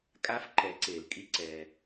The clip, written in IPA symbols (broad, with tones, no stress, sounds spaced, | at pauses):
kʼ a˧˥ f ǃ ɛ˩˧ ǀ e˩ l kʼ i˧ ǀ ɛ˩